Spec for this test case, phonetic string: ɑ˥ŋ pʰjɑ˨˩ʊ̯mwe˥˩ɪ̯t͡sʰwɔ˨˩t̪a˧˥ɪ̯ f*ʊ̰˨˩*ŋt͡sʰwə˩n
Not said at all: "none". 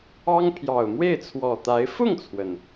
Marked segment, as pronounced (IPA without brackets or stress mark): ʊ˥˩